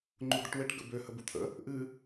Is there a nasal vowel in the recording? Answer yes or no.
no